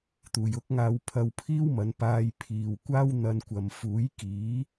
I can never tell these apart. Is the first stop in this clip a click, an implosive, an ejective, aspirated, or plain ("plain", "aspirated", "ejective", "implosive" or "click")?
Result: plain